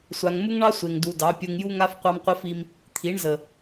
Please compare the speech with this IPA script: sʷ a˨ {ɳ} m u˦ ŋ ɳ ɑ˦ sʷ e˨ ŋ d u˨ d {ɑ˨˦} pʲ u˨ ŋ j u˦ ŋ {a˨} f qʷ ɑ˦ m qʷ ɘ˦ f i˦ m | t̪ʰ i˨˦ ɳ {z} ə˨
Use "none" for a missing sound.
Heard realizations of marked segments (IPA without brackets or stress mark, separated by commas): ŋ, ɑ˨˦, a˦, z